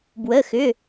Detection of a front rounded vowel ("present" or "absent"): present